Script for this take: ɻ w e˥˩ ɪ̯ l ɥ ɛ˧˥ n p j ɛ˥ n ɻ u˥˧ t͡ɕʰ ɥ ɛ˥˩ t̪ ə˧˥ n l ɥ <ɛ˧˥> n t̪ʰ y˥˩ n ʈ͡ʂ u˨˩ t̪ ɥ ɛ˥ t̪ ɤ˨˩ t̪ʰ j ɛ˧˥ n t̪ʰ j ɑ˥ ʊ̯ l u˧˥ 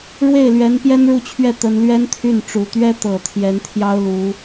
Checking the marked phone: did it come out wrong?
yes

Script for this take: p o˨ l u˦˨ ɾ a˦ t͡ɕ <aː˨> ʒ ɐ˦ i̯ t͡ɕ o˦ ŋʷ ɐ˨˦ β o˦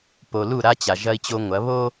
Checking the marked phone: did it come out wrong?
yes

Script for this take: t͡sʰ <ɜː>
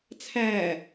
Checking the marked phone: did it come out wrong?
yes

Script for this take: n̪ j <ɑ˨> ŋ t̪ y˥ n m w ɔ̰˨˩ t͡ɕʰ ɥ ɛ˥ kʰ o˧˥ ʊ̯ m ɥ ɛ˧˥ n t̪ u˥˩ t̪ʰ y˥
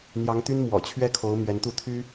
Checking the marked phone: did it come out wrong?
yes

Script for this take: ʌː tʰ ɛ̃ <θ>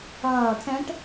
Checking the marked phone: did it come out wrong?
yes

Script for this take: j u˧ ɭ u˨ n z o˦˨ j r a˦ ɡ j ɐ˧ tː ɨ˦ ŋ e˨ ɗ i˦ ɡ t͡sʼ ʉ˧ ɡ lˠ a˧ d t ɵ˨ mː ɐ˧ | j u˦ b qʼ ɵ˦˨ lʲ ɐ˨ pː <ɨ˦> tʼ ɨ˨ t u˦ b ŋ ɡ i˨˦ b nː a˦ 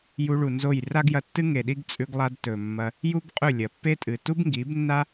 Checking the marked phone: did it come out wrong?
yes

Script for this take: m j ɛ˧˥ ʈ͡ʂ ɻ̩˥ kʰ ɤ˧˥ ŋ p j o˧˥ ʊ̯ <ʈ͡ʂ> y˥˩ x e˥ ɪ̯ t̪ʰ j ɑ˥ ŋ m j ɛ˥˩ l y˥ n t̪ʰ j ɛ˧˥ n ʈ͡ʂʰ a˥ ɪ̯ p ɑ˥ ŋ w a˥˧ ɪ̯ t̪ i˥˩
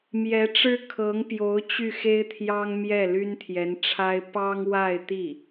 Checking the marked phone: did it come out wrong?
yes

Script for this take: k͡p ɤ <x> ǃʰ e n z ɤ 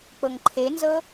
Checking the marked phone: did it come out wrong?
yes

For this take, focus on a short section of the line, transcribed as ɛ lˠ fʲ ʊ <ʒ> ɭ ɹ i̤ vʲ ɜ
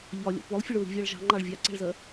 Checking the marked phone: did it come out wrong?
yes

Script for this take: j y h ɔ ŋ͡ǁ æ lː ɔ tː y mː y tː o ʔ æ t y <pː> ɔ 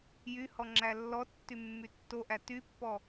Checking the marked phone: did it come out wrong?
no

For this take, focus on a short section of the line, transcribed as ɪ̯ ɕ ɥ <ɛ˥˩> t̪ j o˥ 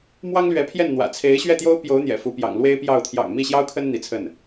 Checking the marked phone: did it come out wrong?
no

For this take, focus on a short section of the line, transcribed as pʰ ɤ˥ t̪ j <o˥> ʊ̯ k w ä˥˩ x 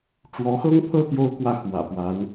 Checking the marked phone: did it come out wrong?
no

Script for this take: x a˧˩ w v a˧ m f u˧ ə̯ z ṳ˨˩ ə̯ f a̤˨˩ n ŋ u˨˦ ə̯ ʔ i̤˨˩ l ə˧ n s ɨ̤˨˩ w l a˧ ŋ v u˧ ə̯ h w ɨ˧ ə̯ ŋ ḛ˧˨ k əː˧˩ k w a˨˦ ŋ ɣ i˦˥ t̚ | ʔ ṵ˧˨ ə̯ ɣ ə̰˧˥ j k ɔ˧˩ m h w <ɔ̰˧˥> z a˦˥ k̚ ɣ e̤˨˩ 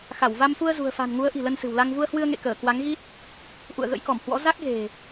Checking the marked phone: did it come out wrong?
no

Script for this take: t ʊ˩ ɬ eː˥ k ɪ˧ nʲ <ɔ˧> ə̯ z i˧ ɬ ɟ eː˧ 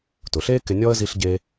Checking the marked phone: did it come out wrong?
no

